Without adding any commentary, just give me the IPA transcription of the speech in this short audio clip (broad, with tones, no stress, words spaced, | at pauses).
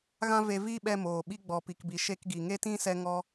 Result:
ɣã˦ve˧viː˦ɓɛ˧ moː˨ɓi˦ ɡ͡bɔ˨pi˨kbi˨ ʃe˧kɡi˨ŋe˦tĩ˦ sɛ˦ŋɔ˦